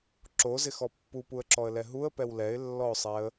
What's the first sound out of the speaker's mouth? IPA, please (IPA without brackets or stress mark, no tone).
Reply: ǁ